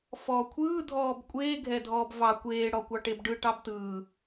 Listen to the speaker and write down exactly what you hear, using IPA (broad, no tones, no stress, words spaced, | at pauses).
fɔːkʷʰɯː dʱɔːbkʷʼeː ɡʱɛdʱɔːbvɑ kʷeː ɽɔkʷɑʈebɖɯ ʈɑbtɯː